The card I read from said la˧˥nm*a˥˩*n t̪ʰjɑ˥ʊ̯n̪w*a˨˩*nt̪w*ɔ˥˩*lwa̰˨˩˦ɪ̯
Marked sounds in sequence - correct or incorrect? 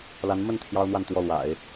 incorrect: ə˥˩, incorrect: a˥˧, correct

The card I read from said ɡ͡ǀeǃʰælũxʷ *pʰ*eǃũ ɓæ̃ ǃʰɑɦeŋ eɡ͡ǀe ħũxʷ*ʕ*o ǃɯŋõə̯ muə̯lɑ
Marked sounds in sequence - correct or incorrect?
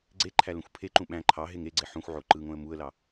correct, correct

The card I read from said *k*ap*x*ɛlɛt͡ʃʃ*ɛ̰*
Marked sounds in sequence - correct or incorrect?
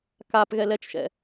correct, incorrect: ɣ, correct

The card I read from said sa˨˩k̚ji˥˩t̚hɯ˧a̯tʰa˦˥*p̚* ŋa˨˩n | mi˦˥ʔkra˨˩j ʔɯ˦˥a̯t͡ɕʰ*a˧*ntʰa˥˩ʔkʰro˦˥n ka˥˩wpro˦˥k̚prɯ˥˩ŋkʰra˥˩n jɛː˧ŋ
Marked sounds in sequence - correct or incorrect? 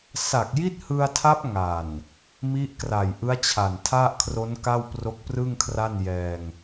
correct, incorrect: a˨˩

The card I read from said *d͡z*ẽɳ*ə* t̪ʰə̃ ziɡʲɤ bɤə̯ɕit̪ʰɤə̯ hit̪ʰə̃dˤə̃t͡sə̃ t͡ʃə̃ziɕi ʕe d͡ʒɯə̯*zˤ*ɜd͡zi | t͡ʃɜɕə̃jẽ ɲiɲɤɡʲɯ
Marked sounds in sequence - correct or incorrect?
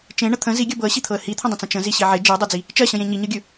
incorrect: t͡ʃ, correct, incorrect: dˤ

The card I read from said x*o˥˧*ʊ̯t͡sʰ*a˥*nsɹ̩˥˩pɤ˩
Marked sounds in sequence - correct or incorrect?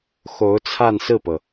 incorrect: o˧˥, incorrect: a˥˧

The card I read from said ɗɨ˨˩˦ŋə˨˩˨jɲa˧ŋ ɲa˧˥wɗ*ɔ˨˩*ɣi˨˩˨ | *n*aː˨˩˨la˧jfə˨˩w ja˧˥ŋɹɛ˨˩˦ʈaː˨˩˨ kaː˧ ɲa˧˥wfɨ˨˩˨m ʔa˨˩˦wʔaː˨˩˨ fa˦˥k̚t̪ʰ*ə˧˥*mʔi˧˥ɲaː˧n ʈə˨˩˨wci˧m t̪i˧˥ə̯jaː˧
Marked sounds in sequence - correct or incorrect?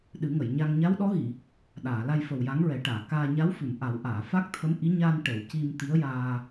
incorrect: ɔ˧˥, incorrect: ɗ, correct

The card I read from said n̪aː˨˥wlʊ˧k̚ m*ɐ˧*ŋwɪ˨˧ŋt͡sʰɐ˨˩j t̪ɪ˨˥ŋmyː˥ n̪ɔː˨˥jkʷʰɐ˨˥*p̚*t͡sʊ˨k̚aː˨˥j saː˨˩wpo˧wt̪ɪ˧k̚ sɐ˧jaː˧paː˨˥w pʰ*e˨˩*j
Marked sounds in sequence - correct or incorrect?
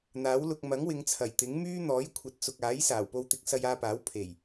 incorrect: ɐ˨˥, incorrect: t̚, correct

